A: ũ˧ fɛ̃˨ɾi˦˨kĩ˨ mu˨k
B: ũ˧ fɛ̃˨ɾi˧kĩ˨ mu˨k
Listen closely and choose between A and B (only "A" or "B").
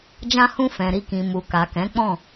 B